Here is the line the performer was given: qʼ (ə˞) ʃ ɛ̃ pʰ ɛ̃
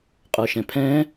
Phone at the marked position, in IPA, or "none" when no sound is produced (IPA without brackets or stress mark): ə˞